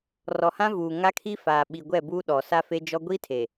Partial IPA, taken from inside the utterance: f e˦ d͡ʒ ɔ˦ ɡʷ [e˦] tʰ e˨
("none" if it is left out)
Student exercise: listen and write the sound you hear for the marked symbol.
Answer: i˦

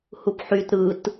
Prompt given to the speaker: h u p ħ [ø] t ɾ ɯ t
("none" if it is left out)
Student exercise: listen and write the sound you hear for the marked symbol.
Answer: y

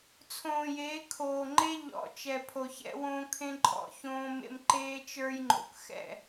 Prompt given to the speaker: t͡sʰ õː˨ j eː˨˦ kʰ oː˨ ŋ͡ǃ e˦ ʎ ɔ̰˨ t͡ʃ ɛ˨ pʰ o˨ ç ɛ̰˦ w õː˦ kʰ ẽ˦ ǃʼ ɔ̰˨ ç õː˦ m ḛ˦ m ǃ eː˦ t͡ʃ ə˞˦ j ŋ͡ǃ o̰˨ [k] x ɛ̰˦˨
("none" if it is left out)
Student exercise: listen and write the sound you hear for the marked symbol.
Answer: k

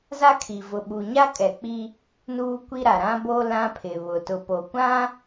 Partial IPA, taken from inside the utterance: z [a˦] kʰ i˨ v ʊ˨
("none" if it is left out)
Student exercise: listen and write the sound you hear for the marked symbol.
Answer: a˦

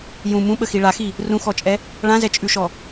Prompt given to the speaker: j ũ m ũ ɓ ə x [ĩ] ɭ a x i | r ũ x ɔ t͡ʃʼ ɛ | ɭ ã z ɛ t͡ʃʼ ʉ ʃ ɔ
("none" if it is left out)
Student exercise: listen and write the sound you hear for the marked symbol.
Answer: i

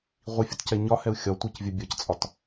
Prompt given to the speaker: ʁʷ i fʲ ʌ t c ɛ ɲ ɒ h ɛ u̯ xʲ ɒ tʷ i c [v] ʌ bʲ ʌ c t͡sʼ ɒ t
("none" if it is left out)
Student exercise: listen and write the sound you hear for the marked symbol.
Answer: vʲ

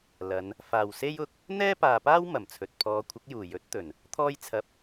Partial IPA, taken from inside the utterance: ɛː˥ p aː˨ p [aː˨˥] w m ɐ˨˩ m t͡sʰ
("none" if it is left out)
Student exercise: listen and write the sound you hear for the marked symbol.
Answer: aː˥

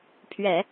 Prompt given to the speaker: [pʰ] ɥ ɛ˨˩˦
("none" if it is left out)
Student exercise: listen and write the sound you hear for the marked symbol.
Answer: pʰ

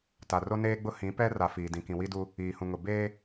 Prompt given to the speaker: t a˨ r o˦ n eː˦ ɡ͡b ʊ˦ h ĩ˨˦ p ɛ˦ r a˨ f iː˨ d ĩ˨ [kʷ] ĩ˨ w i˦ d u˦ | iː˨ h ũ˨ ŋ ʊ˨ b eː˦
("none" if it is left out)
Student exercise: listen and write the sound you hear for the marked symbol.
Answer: k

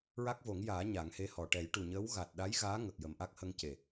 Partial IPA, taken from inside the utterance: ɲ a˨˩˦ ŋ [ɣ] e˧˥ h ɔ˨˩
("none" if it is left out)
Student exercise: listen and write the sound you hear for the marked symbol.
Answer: h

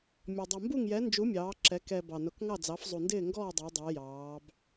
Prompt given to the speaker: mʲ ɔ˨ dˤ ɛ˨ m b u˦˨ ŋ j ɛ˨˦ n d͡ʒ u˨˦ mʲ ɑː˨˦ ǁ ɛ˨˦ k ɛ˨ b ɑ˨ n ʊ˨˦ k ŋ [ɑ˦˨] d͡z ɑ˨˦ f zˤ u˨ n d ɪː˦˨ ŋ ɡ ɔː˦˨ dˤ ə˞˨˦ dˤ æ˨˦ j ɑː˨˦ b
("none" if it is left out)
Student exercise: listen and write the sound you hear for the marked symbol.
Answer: ɑ˦˨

